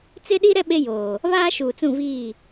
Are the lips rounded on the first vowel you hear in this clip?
no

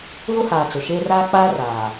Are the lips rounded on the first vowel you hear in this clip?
yes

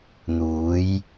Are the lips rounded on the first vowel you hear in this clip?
yes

